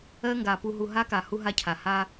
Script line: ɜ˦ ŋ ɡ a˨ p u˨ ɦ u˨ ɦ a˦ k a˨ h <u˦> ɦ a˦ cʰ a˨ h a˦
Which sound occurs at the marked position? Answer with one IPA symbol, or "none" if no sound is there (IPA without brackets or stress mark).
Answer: u˦